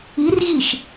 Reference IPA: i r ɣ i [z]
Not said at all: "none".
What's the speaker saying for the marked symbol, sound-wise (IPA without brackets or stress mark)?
ʃ